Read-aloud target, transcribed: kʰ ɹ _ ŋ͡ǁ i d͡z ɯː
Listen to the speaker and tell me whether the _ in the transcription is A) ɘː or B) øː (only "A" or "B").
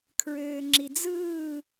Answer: B